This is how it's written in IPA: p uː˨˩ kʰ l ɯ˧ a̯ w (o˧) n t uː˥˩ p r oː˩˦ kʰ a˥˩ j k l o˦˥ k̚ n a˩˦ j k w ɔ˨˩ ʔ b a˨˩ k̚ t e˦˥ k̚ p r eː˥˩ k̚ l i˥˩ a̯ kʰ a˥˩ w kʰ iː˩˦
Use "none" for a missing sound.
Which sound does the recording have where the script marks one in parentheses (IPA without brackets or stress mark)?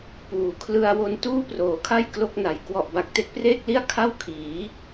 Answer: o˧